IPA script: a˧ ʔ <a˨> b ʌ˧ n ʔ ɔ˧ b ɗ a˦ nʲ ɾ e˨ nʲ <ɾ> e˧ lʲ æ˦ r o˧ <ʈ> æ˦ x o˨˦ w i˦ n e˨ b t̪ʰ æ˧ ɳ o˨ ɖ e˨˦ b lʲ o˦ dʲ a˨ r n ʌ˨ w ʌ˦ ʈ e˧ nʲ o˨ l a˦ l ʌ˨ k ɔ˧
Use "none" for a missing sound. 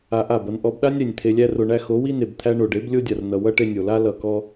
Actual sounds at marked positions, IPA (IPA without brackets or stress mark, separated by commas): a˦˨, t̪ʰ, ɳ